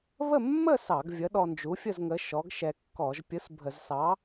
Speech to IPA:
β ə˥˧ mː ə˥˧ s ɑ˧˩˧ ɡ vʲ ə˨˥ ɗ ɔ˧ n d͡ʒ u˨˥ fʲ ə˥˧ z ŋ ə˨˥ ʃ ɔ˨˥ ɡ ʃ ɛ˧ kː ɔ˧˩˧ ʒ pʲ ɯ˨˥ s bʱ ə˧˩˧ z s ɑ˨˥

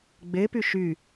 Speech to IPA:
ɡ͡b e p y ʃ y

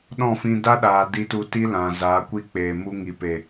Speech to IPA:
ɗ ɔ̃˦˨ f ĩ˧ d a˦ ɗ aː˨ d i˧ t u˧ t i˦ l ã˨ z aː˨˦ kʷ i˦ k͡p eː˨ m u˧ ŋ i˨ p e˨

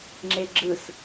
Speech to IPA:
ŋ͡ǁ e ɡ͡ǁ ɯ s

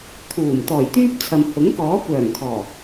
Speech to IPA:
t̪ʰ uː˨˩ m t̪ ɔː˨˩ j t̪ yː˥ p̚ t͡sʰ ɐ˨ m h ʊ˨˥ ŋ k ɔː˨˥ kʷ œː˨˩ ŋ kʰ ɔː˨˩

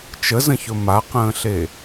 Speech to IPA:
t͡ʃ ə z ə̃ ç ɵ m a q ə̃ː ɬ e

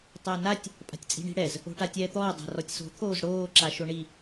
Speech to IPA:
tˤ æ n a tʲ | pʼ a̤ tʲ t͡sʼ i̤ ɳ i̤ ɽ ɛ z | o̤ ʈ a tʲ ɛː t̪ ɔː dˤ a̤ r ɔ tʲ s o̤ t̪ʰ oː z ɽ oː ǁ a ʃ o ɳ i

